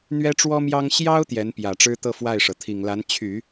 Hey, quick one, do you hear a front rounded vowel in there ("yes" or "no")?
yes